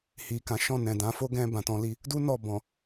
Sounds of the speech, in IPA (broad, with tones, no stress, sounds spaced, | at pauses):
h i˨ k ã˨˦ ʃ ɔ̃˦˨ n ɛ̃˨ d ã˨˦ f o˦ ɡ ɛ̃˧ b ã˨ t ɔ̃˧ l i˧ | d u˦ n ɔ˦˨ b ɔ̃˨